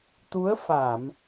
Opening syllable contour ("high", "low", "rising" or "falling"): rising